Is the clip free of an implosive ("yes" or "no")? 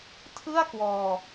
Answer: yes